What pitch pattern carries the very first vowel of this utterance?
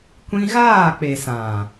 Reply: high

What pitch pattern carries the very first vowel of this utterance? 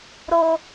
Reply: high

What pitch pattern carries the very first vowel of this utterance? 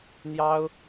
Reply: high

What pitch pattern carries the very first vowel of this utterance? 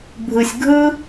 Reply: low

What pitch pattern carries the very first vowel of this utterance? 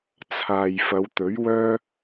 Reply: low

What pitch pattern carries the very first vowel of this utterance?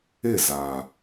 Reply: falling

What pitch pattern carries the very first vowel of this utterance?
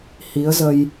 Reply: rising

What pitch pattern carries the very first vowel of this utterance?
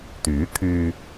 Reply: rising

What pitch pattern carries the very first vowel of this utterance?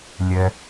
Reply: low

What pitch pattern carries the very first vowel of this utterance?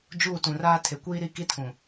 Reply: falling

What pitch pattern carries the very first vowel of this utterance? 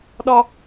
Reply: high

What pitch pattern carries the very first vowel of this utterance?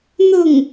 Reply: falling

